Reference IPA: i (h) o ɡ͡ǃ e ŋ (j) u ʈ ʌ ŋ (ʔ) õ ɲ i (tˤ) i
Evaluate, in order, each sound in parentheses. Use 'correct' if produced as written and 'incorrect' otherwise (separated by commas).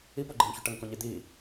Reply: incorrect, incorrect, incorrect, incorrect